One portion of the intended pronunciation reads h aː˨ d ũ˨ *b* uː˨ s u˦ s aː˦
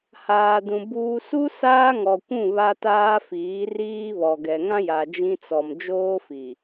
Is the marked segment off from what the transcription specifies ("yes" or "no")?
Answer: no